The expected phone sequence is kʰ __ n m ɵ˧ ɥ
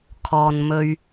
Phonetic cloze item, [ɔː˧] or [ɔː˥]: ɔː˧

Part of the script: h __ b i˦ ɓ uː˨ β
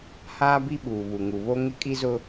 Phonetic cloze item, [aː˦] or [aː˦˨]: aː˦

